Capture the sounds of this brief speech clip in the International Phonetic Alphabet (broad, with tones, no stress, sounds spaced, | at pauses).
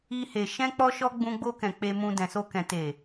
i˧ h e˨ ʃ ɛ̃˧ k͡p ɔ˦ ʃ ɔ˦ ɡ͡b ũ˧ ɡ͡b o˧ k ɛ̃˨ k͡p e˧ m ũ˧ d ɛ̃˨ s o˧ k ɛ̃˨ t e˨